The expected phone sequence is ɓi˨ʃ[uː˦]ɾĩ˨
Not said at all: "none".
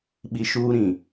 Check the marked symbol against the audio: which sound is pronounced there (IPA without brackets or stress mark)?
uː˦